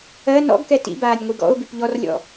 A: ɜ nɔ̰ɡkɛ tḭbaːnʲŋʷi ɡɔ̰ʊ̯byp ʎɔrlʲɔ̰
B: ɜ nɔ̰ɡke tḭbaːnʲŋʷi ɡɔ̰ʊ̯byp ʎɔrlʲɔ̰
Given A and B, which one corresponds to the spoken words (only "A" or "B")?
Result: A